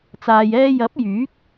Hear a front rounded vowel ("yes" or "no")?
yes